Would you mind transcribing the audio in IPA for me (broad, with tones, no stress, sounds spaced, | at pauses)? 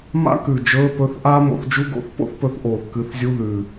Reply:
m a̰˥ k ʉ˨˩ d͡ʒ ɵː˧˥˧ p ɵ˧˥˧ θ ʔ aː˥ m o̰˨˥ θ d͡ʒ u˥ ɡ o̰˧˥˧ θ p o̰˥ θ p ɵ˨˥ θ ʔ oː˨˩ θ k ɨ˨˥ θ zʲ u˧˥˧ ð ʉ˨˩